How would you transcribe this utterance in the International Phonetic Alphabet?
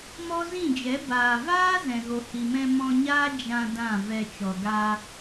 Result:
m ɔ˦ z ĩ˦˨ d͡ʒ ɛ˨˦ b aː˨ v aː˦ z ɛ̃˨ ɣ o˨ h i˨ m ɛ̃˧ m ɔ̃˧ ɲ aː˦ d͡ʒ ã˧ d ã˦˨ v ɛ˧ t͡ʃ ɔ˨ ɡ a˧

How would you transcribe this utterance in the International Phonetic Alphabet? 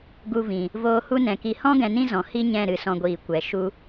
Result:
ɡ u˧ v ĩ˨ | v oː˧ h u˦ n ɛ̃˨ k i˧ h ɔ̃˦ ɡ ɛ̃˧ n ĩ˦ z ɔ̃˨ h i˦ ɲ ɛ̃˦˨ ɾ ɨ˨ s ɔ̃˧ ɡʷ iː˨ kʷ ɛ˨ ʃ u˦

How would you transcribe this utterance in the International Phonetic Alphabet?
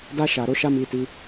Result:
d a˧ ʃ a˨ ɾ o˧ ʃ a˦ m i˧ t i˧

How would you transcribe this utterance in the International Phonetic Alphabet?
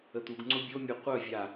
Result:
ə t̪ u ɡ ŋ͡ǀ ʊ bʲ o mʲ o qʷ œ vʲ a

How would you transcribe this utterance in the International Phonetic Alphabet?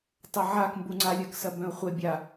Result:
tˤ ɐ ʕ a k m b u ŋ͡ǀ a lʲ œ k s ɐ b œ̃ ʊ̯ χʷ e bʲ a

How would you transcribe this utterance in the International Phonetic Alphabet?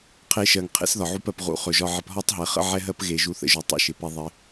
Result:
qʰ e˧ ʃ ɜ˨ ŋ qʰ ḛ˦ s ð ɒ˨ ʕ u˧ p ɜ˨ p ʁ ṵ˨˦ χ ɵ˨ ʒ ɒ˧ ʕ ɪ˧ p ɦ ɒ˦ tˤ ɦ ɛ˨ χ ə̰˦ ʕ ɛ˦ ɦ ɜ˦ p ɣ e˨ ʒ u˧ θ ə̰˧ ʒ u˨ tˤ ḛ˦ ʃ ɪ˨ p e˦ ðˤ ɪ˦

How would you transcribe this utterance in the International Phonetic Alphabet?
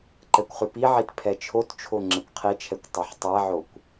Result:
ǃ ɛ kʷ χ ʉ p i ʕ i t pʰ ɛ t͡ʃʰ o t t͡ʃʰ o ŋ͡ǁ ɛ kʷ qʰ i t͡ʃʰ ɛ kʷ tˤ ʉ ħ tˤ ɛ ʕ o kʷ

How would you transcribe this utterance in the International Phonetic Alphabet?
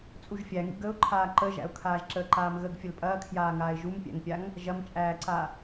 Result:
t͡sʼ u ʒ fʲ æ ŋ ḭ ɡ ə ʊ̯ ǃʰ aː ǃ ə ʒ æ̰ ʊ̯ kʰ aː ʒ ǁ əː ǃ aː m ɣ ə ɡ fʲ ə l pʼ ɐː kʰ j aː ŋ aː ɪ̯ ʒ u m pʲ æ̰ ŋ pʲ a ŋ | ʒ ɐ m t͡ʃʼ æː ǀ a

